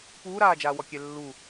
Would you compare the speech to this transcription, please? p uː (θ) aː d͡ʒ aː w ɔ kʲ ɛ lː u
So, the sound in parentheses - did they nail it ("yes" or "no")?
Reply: no